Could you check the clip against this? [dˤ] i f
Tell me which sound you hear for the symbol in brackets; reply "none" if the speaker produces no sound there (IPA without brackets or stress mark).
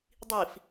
dˤ